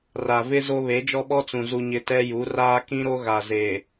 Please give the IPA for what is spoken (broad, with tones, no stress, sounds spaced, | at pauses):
r a˨ v ɪ˦ z o˦ β e˨˦ d͡ʒ ɔ˦ ɓ ɔ˦ t͡s ũ˨ z u˨ ɲ ɪ˨ t ɛ˦ j u˨˦ r aː˦ k ĩ˦ ɾ o˦ ɣ a˨ z e˨